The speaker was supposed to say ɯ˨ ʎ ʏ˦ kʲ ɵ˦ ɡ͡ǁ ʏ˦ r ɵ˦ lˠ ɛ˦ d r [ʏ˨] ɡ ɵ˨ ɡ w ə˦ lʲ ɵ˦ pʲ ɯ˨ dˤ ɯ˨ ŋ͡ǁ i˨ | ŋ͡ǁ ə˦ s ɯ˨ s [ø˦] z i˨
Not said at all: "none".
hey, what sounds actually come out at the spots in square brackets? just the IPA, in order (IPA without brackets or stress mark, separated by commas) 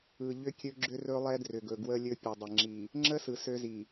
ʏ˨, ø˦